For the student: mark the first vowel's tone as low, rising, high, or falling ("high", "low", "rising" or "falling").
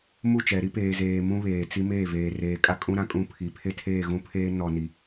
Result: falling